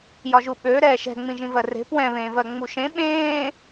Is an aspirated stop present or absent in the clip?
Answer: absent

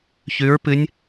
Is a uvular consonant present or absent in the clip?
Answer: absent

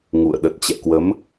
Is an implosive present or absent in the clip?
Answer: present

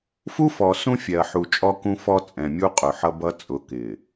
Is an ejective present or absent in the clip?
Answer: present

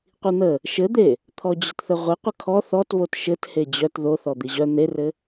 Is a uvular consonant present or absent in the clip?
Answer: present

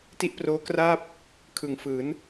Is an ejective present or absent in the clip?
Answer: absent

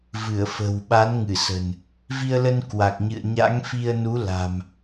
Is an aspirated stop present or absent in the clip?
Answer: absent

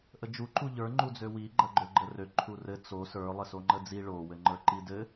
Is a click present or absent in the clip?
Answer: present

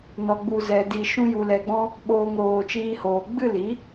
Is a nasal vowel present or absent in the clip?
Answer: present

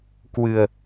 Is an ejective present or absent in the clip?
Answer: absent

